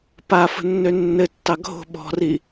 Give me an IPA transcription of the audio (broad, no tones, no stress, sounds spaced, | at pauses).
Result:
p a f ə̤ nː ø nː ɘ tː ɑ ɡʱ o̤ ɓ ɔ̤ r i